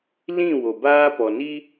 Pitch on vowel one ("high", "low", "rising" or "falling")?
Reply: falling